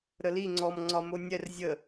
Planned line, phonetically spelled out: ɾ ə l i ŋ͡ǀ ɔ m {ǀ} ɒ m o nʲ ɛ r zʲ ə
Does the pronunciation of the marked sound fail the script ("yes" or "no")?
yes